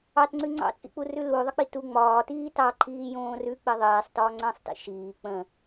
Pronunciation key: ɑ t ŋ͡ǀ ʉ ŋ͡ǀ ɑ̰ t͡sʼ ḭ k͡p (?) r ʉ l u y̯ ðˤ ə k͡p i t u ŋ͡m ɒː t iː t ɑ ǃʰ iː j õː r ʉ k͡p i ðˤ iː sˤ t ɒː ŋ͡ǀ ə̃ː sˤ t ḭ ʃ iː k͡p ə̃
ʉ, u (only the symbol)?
u